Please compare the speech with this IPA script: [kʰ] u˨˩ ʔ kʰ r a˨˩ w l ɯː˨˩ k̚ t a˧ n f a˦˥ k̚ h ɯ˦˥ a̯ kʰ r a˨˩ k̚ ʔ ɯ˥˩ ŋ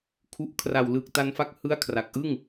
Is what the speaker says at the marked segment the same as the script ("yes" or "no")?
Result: yes